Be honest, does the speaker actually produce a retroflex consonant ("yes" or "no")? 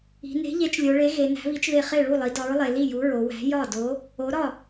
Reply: yes